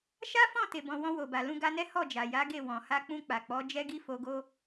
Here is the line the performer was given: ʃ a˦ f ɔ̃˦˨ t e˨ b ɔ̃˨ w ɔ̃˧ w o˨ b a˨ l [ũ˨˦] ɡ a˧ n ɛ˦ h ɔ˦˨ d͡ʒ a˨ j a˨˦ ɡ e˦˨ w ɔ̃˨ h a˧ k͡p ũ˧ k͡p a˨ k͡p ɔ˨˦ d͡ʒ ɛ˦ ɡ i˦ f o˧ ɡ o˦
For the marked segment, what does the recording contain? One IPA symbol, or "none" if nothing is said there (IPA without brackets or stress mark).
ũ˧